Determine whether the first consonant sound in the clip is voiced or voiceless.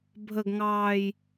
voiced